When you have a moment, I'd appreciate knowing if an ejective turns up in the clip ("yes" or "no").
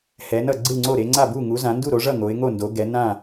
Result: no